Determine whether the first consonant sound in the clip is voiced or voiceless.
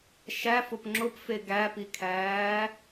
voiceless